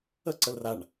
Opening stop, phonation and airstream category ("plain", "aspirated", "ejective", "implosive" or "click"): click